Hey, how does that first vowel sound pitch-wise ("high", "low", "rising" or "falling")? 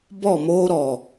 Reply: falling